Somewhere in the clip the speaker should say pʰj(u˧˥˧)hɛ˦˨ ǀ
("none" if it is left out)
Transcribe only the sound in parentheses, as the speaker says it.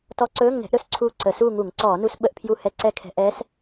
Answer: u˦˨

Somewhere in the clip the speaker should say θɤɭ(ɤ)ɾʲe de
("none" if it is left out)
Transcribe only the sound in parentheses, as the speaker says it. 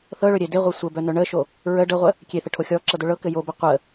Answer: ɵ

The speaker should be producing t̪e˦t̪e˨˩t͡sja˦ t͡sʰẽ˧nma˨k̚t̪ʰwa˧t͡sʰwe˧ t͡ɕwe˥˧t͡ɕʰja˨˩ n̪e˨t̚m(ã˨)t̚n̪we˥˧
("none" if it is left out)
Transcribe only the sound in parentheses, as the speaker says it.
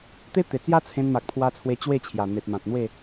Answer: ã˨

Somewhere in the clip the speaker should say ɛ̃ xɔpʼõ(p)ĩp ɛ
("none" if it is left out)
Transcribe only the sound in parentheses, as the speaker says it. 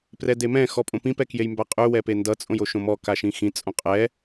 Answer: p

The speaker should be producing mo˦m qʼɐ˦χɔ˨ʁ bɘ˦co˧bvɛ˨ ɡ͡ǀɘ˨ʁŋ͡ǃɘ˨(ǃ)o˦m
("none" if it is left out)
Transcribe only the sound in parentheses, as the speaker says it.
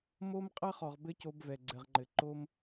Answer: ǃ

